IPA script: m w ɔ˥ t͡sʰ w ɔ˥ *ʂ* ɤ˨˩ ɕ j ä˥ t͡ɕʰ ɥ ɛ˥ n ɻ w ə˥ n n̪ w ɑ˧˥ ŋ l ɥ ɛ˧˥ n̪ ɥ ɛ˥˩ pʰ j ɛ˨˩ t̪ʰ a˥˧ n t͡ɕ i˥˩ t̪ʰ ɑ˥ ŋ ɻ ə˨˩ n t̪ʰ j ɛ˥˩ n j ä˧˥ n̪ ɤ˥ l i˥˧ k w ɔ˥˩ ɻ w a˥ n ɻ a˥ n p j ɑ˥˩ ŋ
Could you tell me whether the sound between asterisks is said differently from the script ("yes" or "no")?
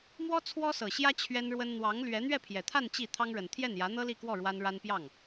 yes